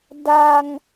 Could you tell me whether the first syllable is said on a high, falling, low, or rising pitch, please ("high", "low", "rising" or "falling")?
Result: high